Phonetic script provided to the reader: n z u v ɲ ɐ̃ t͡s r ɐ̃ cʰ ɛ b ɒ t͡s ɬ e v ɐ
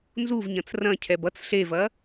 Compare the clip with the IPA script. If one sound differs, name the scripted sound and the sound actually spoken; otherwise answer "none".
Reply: ɒ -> ʌ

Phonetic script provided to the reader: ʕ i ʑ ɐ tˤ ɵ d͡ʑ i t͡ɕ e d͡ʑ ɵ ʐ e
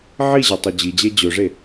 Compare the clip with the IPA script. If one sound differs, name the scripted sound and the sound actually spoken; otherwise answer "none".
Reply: t͡ɕ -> d͡ʑ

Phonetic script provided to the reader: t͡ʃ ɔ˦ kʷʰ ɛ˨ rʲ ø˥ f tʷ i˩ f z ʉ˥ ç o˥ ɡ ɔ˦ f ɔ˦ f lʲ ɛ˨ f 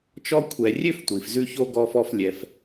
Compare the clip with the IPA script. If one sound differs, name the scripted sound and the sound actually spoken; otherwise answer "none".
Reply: none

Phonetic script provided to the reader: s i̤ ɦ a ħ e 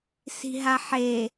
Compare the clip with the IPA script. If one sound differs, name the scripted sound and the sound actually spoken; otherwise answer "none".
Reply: none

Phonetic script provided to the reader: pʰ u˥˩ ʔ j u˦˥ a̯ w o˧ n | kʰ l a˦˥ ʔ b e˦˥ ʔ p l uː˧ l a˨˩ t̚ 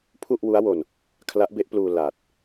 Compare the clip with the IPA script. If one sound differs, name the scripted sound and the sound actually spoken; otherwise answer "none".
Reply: j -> w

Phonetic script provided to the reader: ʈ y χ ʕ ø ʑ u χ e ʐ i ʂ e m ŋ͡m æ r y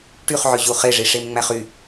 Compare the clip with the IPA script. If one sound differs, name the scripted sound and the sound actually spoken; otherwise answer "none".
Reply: r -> χ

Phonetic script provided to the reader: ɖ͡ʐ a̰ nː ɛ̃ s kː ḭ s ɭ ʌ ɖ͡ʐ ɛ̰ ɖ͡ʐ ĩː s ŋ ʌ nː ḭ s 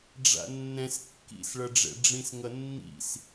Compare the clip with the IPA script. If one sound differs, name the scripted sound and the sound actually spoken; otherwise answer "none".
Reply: ĩː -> ĩ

